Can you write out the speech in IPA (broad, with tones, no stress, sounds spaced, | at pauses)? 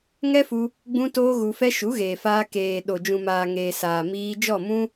ŋ ɛ˦ f u˧ | ɡ͡b ũ˦ t oː˦ ɣ u˧ f ɛ˦ ʃ u˨˦ ɣ eː˨ f aː˧ k eː˨ ɗ o˨ d͡ʒ ũ˨ m aː˨ ŋ eː˨ s aː˨ m iː˧ d͡ʒ ɔ˦˨ m ũ˦